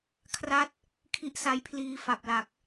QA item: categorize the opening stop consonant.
aspirated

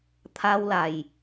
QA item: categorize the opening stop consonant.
aspirated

